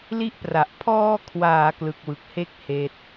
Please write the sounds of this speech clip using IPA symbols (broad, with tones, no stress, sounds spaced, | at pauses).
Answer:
l i˥˩ ʔ p r a˨˩ ʔ pʰ ɔː˧ kʰ w aː˩˦ k l ɯ˨˩ k̚ w ɯ˨˩ k̚ h e˥˩ k̚ h eː˦˥ t̚